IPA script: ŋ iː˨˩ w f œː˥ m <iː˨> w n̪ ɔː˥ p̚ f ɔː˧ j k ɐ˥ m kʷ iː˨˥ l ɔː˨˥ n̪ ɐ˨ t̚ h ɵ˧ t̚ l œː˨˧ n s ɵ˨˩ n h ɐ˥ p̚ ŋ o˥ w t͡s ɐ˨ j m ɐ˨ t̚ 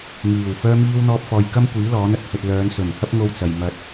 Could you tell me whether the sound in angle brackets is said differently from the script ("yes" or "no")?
yes